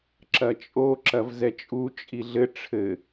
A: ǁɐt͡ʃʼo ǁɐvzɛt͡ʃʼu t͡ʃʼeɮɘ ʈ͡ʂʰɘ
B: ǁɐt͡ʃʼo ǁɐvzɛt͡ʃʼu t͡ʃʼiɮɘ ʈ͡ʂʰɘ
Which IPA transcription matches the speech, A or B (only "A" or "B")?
B